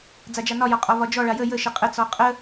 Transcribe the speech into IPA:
d͡z a d͡ʒ a n ɒ j ɒ qʼ ɒ v ɒ d͡ʒ ɔ ɭ a j ə j ə ʃ ə qʼ ə t͡s ɔ qʼ ə

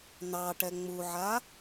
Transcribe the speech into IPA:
n̪ ɑ ʈ ɛ ŋ͡m u ʕ a

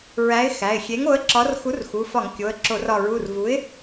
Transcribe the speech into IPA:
ɹ æ˨˥ ɪ̯ x æ˩˧˩ ɪ̯ xʲ e˨˥ ŋ o˨˥ ə̯ ǁ ɒ˨˥ r x u˨˥ r x u˩˧˩ f ɒ˧˩˧ ŋ kʲ o˩˧˩ ə̯ ǁ o˧˩˧ r ɒ˧˩˧ ɹ u˩˧˩ r v u˨˥ ɪ̯

